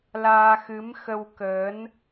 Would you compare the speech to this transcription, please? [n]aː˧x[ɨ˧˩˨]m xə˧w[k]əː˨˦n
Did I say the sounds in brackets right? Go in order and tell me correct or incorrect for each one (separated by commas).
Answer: incorrect, incorrect, correct